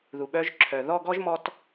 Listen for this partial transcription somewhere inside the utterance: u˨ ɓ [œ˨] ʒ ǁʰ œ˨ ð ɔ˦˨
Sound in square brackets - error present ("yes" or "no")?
yes